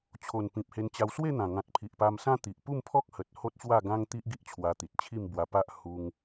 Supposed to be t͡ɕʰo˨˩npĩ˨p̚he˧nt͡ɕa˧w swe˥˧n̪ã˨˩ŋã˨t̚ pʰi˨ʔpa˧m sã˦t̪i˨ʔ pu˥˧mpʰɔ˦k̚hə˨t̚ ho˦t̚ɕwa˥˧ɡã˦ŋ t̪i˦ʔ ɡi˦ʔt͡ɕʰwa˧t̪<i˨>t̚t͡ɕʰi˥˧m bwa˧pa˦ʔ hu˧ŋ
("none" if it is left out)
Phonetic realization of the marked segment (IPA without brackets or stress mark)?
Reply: i˨